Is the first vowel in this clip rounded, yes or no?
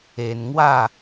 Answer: no